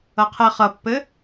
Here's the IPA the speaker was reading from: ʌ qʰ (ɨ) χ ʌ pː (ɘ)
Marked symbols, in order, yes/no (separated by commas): no, yes